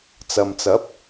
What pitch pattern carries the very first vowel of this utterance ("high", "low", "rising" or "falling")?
low